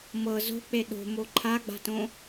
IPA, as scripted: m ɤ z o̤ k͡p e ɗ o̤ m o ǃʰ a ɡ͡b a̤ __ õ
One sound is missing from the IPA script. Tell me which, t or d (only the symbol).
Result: t